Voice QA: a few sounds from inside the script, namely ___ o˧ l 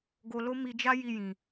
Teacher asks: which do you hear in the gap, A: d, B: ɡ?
B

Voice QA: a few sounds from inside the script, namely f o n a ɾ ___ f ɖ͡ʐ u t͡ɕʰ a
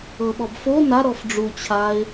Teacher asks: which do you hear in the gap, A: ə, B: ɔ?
B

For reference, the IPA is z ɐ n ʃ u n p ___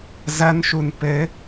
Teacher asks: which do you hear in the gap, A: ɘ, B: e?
A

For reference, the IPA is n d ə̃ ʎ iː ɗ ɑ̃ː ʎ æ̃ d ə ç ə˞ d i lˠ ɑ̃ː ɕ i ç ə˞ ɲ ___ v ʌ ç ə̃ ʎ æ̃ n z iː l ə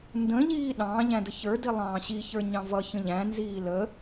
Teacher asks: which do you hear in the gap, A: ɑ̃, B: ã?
A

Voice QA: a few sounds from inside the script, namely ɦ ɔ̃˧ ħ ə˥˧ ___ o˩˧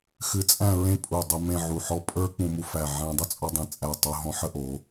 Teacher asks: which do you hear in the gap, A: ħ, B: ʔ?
B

